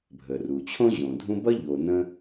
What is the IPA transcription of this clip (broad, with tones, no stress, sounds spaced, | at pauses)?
bʱ ə˩ r u˩ t͡ɕʰ õ˥ ʑ õ˨ dʱ ũ˥ b ʌ˥ ʎ o˨ n ə̃˥